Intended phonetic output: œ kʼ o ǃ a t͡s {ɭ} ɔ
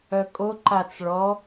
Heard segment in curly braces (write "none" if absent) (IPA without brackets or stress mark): ɭ